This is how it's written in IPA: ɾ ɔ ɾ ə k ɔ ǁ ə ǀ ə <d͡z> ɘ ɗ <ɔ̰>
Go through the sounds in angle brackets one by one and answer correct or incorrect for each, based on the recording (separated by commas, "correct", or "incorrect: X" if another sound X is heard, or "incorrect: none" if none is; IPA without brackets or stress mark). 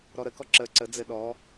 correct, incorrect: ɔ